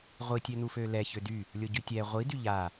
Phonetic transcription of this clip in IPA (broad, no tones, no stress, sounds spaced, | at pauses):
ʁʷ i tʲ ø n u f ø l ɛ ç ø d y | lʲ o ɟ y tʲ ɛ ʁʷ i d y ʎ a